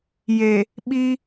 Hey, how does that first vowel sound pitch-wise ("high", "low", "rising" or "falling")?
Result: low